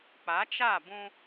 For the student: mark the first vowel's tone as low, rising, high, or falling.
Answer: rising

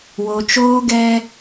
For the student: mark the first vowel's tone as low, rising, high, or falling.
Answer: low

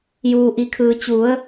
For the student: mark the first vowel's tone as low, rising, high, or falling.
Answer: low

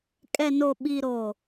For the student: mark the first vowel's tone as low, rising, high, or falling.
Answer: low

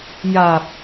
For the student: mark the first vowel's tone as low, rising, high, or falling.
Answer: low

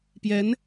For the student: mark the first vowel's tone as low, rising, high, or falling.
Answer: rising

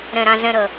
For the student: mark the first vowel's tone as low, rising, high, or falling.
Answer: low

